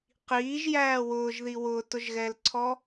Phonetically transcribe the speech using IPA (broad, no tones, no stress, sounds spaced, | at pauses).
q iː ʒ j æː w ʊː ʒ ð i w ʊː t ʊ ʒ ɣ ɛː l ǀʰ ɔ